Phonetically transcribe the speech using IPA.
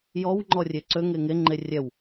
j ɔ w ŋ͡ǃ ɔ rʲ e ǀ ø ŋ e ŋ e ŋ͡ǃ e rʲ ɛ w

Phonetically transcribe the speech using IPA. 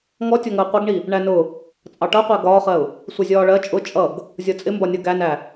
ŋ ɔ tʲ ɒ ŋ əː qʷ ʌ ɡ ɳ i | ɳ æ n ʊ | t͡sʼ ɑ ʈ ʌ qʷ æ ɡ ɒː χ ɜ ʊ̯ | sʷ ʌ zʲ ɒː ɭ ɜ t͡ʃʼ ʊ t͡ʃʼ ʌ ɡ | zʲ ɒ t͡sʼ ɪ m b ɒ nʲ ʌ ɡ æ n æ

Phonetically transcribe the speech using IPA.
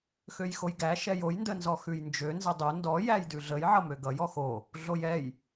x ø j x o j ɡ æ ʃ ɛ j o j n d ə n z ɔ x ʉ j n d͡ʒ ø n z ə dˤ o n d ɔ j æ j d ʉ ɮ ə j ʕ ʌ m ø ɡ ʌ j ɔ x o | ɮ o j ɛ j

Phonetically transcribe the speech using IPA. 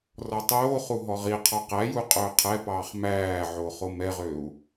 r ɔ tˤ oː χ u ɦ ɔ ʁ i qʰ ɔ q æ j u qʼ ɵː qʰ ɛ p ɑː χ m æː ʕ o χ o m ɛ ʁ ø u̯

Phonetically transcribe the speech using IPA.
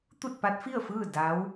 t̪ u˥˨ t̚ p a˧˥ t̚ f i˥˨ ə̯ f ɯː˥˨ d a˧˥ w

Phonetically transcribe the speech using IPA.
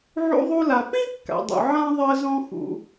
ʕ ṵ˧ ðˤ u˧ l a˩ p ĩ˥ kː a̰˩ dˤ ṵ˩ ʕ ã˧ ðˤ ɜ˧ z ɔ̃˧ x ṵ˩

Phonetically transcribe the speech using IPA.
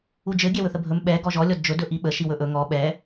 u d͡ʒ ɘ ɡʲ ɛ w ɵ θ ə bʱ ɵ m ɓ ɛ ɡ ɔ ʒ ɔ lʲ ɔ d d͡ʒ ɵ d ɵ ʔ i ɓ ə ʃ i w ɵ ʔ ɵ ŋ ɔ ɓ ɛ

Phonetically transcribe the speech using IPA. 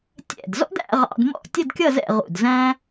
tʲ ɛ̰˧˩ d z ɔ̰˥ d æ̰˥˧ ʁ ɑ̰˧ d m ɔ̰˥˧ tʲ ə˥˧ d kʲ ʌ˥˧ z ɛ̰˥˧ ʁ ṵ˧˩ d z æ̃˥

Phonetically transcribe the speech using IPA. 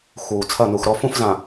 x uː˨ t͡sʰ ɐ˦˨ n u˨ x ɾ ɔ˦ f ũ˦ f z ã˨

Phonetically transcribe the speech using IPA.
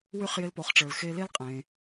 w y˥ χ j ɪ˧˥ l p o˩˧ χ ʈ͡ʂ ə˞˩ l x e˧ l e˥ l qʼ ẽ˩

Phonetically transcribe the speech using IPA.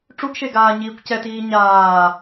ʈ͡ʂ u ɡ ʃ e ɡ aː ɲ iː kʷ c ɛ t iː ɲ aː

